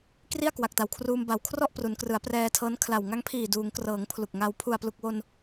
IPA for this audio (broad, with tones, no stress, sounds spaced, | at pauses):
k r i˥˩ a̯ k w a˨˩ k̚ t a˨˩ w kʰ r uː˧ m b a˩˦ w kʰ r ɔ˥˩ ʔ p r u˩˦ n k r ɯ˩˦ a̯ p r ɛː˧ tʰ ɤː˦˥ n kʰ l a˨˩ w ŋ a˦˥ ŋ pʰ iː˨˩ d uː˩˦ ŋ k r ɤː˩˦ ŋ pʰ l u˨˩ k̚ ŋ a˧ w pʰ u˨˩ a̯ p l u˨˩ k̚ w o˧ n